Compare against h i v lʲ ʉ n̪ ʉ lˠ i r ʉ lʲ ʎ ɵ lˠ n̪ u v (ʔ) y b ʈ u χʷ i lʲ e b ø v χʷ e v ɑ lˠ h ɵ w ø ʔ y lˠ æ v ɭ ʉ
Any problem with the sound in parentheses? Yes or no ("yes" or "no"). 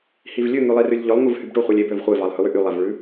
yes